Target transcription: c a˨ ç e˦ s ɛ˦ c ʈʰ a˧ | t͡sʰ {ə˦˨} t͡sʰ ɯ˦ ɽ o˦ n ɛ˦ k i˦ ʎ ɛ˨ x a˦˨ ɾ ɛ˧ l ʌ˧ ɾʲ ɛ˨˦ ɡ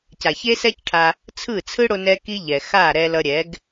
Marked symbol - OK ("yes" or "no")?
no